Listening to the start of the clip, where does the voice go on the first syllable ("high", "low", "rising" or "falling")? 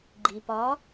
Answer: low